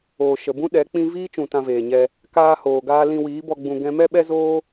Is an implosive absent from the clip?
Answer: no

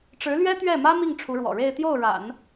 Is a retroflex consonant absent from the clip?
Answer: no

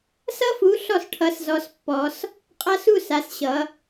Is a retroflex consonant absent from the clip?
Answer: no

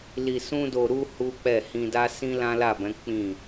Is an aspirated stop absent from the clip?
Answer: yes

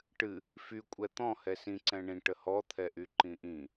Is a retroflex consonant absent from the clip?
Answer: no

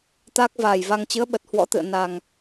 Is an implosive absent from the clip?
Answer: no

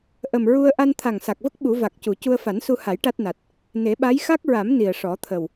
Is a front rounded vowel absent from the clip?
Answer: yes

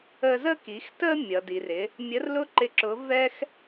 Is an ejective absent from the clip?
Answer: yes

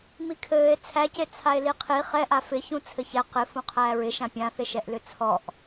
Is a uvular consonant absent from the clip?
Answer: no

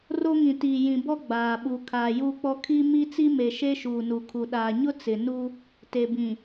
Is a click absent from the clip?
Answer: yes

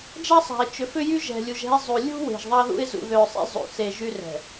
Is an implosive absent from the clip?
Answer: yes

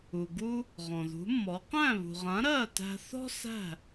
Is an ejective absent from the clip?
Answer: yes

